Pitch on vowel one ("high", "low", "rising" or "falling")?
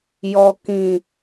low